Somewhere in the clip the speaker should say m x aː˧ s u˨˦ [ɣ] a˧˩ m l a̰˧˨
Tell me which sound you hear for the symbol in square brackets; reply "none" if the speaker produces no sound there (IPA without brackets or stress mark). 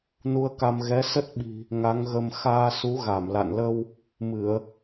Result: ɣ